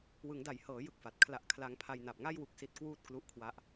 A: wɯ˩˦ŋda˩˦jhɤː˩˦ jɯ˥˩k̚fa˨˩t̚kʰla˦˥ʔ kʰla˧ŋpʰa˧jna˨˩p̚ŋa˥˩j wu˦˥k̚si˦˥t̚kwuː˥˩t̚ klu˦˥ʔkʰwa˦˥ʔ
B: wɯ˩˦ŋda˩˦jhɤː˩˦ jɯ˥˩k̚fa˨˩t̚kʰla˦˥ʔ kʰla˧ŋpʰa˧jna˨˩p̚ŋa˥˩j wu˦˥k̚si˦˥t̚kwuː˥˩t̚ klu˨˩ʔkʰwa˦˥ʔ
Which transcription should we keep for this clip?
A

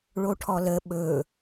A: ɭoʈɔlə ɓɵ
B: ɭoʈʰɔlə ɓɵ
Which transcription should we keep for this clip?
B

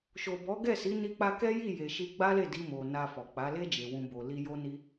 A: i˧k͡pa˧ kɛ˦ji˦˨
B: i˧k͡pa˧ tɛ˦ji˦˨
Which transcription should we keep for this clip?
A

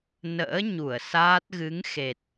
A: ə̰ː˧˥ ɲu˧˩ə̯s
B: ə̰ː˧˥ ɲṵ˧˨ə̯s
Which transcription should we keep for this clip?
A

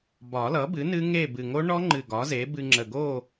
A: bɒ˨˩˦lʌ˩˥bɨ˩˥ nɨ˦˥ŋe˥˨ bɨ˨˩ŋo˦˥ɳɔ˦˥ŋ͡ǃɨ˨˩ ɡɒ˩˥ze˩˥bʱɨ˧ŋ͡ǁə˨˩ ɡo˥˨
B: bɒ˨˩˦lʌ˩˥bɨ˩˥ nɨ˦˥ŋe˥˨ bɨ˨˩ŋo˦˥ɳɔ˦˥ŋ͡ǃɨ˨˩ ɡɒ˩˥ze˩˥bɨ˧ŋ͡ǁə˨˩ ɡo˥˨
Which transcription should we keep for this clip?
B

